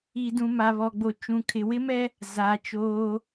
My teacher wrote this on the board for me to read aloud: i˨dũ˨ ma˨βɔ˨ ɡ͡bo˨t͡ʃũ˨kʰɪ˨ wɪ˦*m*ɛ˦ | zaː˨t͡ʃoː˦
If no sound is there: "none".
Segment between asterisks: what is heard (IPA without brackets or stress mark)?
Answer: m